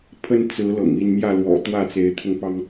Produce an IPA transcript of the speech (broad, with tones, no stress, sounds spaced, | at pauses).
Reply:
pʰ ə˦ n t͡s ɹ̩˨˦ l ɤ̰˨˩ ŋ i˥˨ n m j ä˥˨ l w ɔ̰˨˩ t̪ w ä˥˨ t͡s e˨˦ ɪ̯ t̪ʰ ʊ˧ ŋ p ɑ˦ ŋ